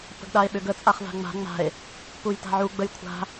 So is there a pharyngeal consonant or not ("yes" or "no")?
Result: yes